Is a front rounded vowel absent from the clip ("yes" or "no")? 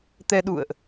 yes